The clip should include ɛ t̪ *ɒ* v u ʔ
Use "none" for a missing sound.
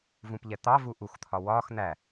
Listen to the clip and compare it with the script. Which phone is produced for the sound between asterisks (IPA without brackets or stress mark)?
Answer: ɑ